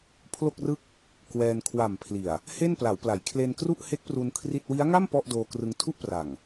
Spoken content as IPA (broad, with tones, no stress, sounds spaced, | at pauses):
pʰ l o˥˩ k̚ r ɯ˥˩ k̚ | k w ɛː˧ n kʰ w a˨˩ m pʰ l i˨˩ a̯ | h e˥˩ n p l a˩˦ w p l a˩˦ j kʰ l e˧ n k r u˥˩ ʔ h e˦˥ k̚ p r u˧ n kʰ r i˥˩ t̚ w i˦˥ a̯ ŋ a˥˩ m p ɔ˥˩ ʔ d oː˧ k r ɯ˧ ŋ tʰ u˥˩ ʔ p r a˨˩ ŋ